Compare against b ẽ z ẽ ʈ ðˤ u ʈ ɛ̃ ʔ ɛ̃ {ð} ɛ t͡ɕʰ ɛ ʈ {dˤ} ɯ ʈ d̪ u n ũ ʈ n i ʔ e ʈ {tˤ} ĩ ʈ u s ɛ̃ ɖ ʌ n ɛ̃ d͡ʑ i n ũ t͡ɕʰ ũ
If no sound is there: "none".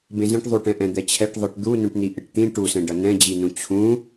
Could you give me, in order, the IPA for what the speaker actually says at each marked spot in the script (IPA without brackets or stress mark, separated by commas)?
d̪, ðˤ, t̪